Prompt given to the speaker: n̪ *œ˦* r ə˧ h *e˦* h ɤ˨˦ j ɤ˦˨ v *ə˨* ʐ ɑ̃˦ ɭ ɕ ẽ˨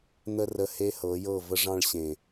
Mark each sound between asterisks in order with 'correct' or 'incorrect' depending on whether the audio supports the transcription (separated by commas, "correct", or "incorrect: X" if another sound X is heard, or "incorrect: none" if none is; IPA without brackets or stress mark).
incorrect: ə˦, correct, incorrect: ə˦